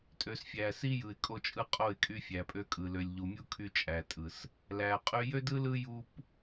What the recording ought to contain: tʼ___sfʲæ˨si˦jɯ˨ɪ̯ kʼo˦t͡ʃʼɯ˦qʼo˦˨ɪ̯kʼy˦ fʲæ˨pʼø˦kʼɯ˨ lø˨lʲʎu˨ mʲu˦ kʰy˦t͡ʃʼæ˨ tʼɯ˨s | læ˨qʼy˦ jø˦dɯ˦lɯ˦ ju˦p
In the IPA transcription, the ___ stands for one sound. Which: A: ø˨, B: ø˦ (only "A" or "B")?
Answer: A